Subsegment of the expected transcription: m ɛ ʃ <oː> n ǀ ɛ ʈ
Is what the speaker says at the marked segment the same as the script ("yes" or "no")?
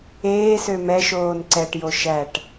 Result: yes